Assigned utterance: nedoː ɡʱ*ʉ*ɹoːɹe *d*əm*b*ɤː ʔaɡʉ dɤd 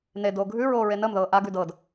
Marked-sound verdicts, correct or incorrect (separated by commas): correct, incorrect, incorrect